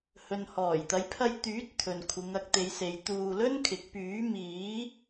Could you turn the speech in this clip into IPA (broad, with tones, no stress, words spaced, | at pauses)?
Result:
hɵ˨nhɔː˨˩jt̪ɐ˨˧j pʰɐ˧jt̪yː˨˥t̚ t̪ʰɵ˨nkʷʰɪ˨˧ŋɐ˨˥k̚ t̪e˨˧jse˨j t̪uː˧lɵ˥nkʰɪ˨˥k̚ pyː˨˥miː˨˥